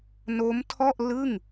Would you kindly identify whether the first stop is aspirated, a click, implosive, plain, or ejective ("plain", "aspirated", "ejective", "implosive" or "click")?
aspirated